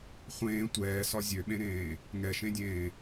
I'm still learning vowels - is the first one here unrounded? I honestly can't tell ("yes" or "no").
yes